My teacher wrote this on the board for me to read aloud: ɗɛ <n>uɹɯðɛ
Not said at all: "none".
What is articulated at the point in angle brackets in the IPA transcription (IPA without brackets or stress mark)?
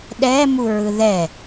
m